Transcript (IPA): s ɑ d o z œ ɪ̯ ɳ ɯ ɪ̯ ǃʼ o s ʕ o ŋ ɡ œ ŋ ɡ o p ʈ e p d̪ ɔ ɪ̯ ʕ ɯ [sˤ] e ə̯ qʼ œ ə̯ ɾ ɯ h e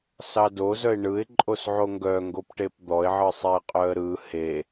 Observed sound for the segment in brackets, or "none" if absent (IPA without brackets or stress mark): sˤ